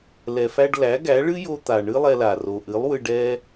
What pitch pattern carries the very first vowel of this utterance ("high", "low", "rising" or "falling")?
low